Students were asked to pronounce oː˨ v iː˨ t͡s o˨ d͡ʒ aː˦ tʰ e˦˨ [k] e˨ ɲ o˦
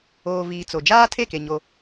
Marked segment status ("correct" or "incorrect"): correct